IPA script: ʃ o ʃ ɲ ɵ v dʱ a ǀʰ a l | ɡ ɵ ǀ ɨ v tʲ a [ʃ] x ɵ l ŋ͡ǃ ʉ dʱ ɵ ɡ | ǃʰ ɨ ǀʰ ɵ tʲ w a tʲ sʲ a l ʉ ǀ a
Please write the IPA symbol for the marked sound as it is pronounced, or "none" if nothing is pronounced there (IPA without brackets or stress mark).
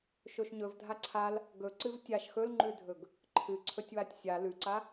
ʃ